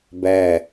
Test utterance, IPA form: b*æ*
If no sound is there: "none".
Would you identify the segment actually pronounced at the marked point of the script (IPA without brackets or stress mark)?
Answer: æ